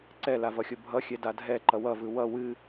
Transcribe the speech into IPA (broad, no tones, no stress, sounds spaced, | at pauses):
ǀ ɛ l a v ʌ xʲ o bʱ ʌ xʲ ɛ d a dʱ ɛ ǃ ʌ w ʌ v ɯ w ʌ w ɨ